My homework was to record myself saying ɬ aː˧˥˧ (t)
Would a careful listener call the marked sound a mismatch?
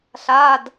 yes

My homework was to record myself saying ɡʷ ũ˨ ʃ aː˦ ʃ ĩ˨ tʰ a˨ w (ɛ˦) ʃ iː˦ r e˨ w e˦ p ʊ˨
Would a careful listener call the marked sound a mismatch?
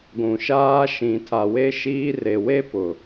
yes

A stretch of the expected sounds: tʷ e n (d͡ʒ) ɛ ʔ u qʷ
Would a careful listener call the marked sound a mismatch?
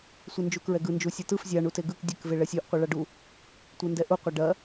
yes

